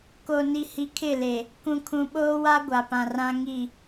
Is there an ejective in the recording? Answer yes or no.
no